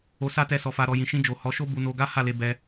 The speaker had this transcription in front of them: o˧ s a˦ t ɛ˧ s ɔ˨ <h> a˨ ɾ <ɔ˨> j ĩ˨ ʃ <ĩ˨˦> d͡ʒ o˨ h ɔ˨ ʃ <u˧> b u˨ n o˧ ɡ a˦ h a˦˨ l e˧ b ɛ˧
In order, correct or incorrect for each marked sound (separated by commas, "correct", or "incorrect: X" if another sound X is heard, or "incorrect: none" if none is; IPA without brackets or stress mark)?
incorrect: f, correct, incorrect: ĩ˧, incorrect: o˧